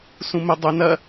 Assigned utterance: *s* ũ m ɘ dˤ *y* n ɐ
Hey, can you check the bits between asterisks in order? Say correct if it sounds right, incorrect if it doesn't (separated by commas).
correct, incorrect